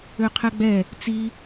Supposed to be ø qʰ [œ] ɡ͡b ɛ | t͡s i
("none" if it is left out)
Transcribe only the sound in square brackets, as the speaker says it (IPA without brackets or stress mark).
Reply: ɛ